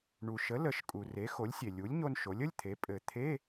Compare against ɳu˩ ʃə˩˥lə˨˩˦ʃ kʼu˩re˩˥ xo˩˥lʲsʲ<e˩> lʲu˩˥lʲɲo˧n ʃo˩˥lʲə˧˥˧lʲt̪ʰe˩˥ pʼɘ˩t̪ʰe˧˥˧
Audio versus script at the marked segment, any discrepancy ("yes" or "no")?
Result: no